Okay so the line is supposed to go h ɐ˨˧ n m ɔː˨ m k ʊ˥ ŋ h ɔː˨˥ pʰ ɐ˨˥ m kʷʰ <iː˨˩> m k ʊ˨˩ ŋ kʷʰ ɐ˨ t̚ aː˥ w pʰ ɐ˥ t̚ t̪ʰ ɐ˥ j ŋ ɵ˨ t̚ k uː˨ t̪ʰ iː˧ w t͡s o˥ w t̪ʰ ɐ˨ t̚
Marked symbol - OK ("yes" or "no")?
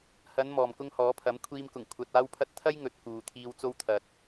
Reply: no